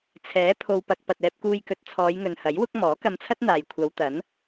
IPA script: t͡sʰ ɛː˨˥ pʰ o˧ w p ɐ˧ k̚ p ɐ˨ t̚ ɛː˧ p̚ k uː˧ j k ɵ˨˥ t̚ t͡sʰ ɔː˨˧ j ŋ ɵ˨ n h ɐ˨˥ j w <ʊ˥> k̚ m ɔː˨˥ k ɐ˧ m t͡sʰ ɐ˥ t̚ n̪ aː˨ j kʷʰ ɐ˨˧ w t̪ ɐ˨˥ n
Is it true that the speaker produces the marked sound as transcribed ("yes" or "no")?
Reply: yes